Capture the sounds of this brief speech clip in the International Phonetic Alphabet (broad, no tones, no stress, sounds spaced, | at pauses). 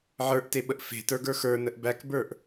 ʕ ə˞ ʔ t e ɓ ə ʔ f e̤ t ə˞ ɡ ə˞ x ə˞ n ə ʔ b æ k b ə˞ ʔ